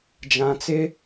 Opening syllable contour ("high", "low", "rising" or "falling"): low